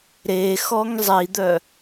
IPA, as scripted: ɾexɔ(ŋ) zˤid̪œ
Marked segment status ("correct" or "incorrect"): correct